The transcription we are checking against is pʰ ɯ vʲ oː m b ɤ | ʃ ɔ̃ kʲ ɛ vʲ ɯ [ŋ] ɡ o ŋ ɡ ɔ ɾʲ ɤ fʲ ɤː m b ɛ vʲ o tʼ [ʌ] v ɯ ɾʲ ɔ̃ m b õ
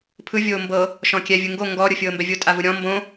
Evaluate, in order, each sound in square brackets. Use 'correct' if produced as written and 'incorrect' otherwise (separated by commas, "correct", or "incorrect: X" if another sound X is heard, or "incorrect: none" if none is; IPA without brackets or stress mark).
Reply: correct, incorrect: a